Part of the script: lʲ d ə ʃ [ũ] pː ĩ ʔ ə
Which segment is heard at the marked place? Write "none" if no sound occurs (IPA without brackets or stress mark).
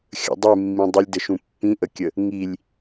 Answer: ũ